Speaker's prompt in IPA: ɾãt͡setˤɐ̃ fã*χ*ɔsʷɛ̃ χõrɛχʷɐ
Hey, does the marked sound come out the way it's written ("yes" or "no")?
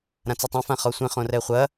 yes